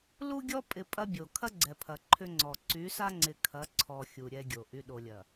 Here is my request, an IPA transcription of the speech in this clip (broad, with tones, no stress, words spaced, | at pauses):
lu˦ɡʲɔ˦ pʼɪ˨ pʼɐ˦bʲo˨ kʰɐ˦ɡ͡ǀɛ˨pʰɐ˨ ǃʰʏ˦ŋ͡ǀɔ˨ ǀy˨˦sa˦ŋ͡ǀɪ˨ kʰɐ˨˦ ǀʰɔ˨ xʲu˨ɾʲɛ˦ɡʲo˨ ʔy˨ɗo˨lʲɐ˨